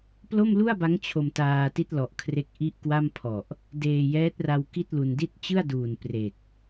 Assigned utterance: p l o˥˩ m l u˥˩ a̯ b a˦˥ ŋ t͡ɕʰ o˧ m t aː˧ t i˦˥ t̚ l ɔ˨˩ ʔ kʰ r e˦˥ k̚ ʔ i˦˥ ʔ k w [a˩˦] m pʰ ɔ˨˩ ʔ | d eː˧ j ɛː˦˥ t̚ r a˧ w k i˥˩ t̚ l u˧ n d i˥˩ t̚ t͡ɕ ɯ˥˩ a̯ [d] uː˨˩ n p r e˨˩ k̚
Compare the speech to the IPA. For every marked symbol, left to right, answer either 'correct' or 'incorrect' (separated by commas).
incorrect, correct